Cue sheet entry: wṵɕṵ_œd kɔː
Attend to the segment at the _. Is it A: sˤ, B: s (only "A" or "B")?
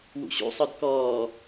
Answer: A